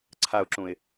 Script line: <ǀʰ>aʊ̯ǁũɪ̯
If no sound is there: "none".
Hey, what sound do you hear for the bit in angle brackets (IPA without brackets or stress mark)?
ǀʰ